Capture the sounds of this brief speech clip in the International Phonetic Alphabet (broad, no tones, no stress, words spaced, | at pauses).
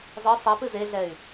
zˤɨ sˤipɨ zeɮɛy̯